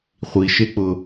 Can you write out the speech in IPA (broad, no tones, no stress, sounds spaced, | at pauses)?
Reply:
χʷ i ʃ e k͡p ʊ